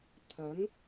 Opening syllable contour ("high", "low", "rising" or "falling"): rising